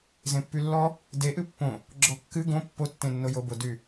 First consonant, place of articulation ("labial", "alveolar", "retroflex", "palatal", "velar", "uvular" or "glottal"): alveolar